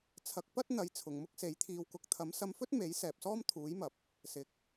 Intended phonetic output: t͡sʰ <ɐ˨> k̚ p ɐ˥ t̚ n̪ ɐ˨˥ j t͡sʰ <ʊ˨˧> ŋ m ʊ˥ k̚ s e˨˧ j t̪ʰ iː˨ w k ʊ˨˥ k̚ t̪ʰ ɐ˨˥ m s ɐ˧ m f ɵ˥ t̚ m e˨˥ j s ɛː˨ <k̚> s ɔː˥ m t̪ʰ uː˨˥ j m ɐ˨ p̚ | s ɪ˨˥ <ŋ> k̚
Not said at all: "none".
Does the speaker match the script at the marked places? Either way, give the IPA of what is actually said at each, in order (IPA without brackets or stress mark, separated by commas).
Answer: ɐ˨˥, ʊ˨, p̚, none